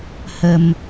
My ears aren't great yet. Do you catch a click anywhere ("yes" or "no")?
no